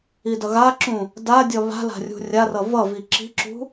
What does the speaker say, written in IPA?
i d ʌ ɣ a ǁ ũ | d a dʲ ʌ β a̤ l a̤ rʲ ṳ rʲ a r ʌ v ʌ v i ǁ i̤ ǁ ṳ

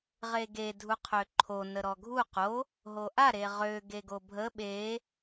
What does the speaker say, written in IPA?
ʁ e ɡ e dʱ u qʰ ø ǃʰ o n ə ɾ ɔ ɡʱ u q o | ɦ o ʔ a ɾ e ʁ ø ɡ e ɡ o bʱ ə ɓ e

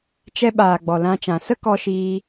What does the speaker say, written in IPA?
t͡ʃ ɛ˧ ɓ aː˨ ɡ͡b ɔ˨ l ã˧ t͡ʃ ã˨ s ə˦ k ɔ˧ ʃ iː˧

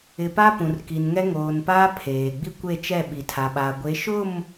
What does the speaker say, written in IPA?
ɪ˨ p a˦ p ũ˨ r k i˨ n ŋ ɛ˦ ŋ oː˨ n p aː˦ pʰ eː˨ ɡ͡b i˦ kʷ e˦˨ t͡ʃ ɛ˦˨ ɓ i˨ tʰ a˨ ɓ a˨ ɡʷ e˨˦ ʃ ʊ˦˨ m

